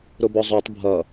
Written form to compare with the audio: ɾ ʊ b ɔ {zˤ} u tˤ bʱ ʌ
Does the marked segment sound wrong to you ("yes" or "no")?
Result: no